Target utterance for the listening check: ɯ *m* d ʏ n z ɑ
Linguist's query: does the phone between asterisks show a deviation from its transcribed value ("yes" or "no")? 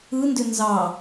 yes